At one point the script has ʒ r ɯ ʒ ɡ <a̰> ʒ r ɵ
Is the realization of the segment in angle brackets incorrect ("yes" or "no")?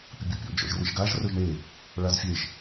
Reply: yes